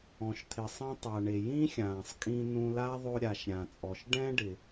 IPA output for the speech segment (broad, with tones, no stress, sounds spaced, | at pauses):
ɔ̃˩ ʃ t̪ʰ ɪ˩ sˤ ĩ˧ tˤ a˩ ɳ e˩ j ĩ˥ xʲ ãː˩ sˤ kʼ ĩ˧ n ũ˧ l a˥ ðˤ o˧ ɾʲ a˩ ʃ ɾʲ ã˩ t͡sʼ ɔ˩ ʃ ɖ ɛ̃˥ ɖ ɪ˩